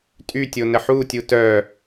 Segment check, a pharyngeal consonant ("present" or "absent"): present